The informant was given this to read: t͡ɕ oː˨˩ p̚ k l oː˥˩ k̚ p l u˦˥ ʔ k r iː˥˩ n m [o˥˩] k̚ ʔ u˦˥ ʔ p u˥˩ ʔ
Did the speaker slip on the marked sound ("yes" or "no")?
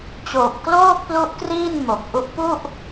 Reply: yes